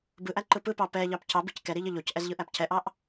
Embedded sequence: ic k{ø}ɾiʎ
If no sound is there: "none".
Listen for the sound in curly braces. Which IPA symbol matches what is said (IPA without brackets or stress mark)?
ɛ